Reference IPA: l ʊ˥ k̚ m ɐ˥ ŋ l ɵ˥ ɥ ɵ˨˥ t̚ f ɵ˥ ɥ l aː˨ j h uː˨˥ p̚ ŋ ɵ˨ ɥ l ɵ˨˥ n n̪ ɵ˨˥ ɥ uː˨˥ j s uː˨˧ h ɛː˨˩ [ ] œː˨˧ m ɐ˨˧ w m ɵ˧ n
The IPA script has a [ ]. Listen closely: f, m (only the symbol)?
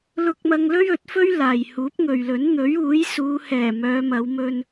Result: m